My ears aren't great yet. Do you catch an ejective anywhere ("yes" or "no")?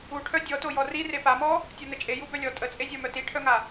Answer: yes